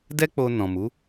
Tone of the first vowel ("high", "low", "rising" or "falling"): high